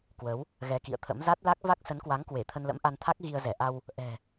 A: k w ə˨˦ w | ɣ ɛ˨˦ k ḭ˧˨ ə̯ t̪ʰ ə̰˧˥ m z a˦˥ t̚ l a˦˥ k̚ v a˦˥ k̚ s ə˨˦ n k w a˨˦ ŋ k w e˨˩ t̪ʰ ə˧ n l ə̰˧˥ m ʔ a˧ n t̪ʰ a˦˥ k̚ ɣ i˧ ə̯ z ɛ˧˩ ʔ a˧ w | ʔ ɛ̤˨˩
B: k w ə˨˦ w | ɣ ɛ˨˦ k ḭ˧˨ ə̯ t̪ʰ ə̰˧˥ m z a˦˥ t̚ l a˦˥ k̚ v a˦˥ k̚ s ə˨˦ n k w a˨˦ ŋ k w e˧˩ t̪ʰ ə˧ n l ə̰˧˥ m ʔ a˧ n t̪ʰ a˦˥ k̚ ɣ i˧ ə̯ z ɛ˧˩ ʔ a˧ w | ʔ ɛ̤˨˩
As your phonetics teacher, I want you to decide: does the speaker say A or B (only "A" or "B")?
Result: B